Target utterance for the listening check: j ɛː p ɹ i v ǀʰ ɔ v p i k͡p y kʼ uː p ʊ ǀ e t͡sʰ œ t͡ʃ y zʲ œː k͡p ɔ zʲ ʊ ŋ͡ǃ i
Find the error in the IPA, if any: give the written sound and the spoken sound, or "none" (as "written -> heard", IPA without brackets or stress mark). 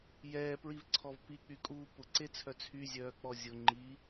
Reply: t͡ʃ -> t͡sʰ